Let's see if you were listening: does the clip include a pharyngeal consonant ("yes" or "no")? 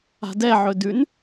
yes